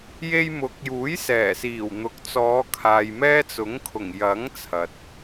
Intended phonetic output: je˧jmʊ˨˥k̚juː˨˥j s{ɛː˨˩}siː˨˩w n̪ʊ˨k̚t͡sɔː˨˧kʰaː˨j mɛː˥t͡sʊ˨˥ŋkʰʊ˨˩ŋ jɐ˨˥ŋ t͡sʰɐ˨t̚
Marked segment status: correct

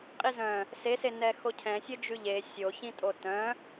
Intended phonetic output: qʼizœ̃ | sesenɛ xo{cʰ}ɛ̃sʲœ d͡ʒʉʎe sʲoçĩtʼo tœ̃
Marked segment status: correct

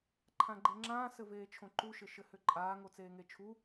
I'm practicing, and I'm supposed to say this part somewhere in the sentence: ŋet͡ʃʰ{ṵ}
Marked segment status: incorrect: u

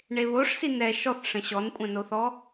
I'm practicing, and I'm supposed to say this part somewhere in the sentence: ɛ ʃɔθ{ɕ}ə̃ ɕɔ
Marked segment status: incorrect: ʂ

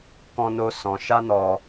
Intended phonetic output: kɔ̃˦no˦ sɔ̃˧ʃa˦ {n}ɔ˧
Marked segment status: correct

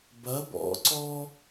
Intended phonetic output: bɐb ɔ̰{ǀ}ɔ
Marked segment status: correct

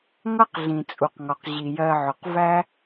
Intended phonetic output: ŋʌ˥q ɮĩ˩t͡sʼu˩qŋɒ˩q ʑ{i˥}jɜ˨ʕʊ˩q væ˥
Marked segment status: incorrect: i˩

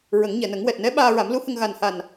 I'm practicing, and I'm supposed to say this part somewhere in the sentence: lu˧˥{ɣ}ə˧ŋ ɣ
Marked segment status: incorrect: h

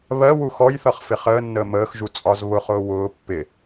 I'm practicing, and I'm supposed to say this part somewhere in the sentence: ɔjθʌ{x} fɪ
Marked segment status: incorrect: χ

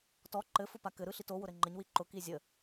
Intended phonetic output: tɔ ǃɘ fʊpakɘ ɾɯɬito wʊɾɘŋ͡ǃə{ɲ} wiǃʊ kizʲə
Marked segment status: correct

